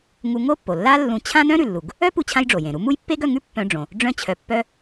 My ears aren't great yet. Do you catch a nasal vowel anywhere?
yes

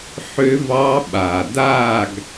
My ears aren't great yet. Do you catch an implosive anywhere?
yes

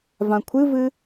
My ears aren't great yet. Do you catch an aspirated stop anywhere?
yes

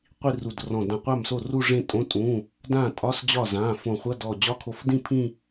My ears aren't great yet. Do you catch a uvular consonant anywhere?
yes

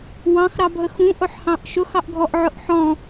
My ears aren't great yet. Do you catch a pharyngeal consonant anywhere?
yes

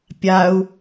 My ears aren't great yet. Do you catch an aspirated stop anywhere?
no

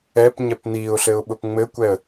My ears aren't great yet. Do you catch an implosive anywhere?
yes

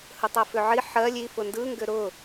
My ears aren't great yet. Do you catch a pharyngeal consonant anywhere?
yes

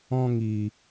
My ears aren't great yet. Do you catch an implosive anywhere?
no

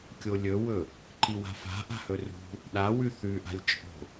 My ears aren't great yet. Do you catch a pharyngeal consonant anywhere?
no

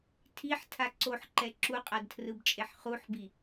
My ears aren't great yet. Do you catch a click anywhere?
yes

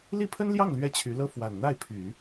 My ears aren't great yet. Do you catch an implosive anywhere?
no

